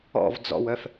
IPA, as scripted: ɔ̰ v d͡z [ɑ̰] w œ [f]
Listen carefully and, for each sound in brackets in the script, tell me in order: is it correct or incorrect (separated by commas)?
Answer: incorrect, correct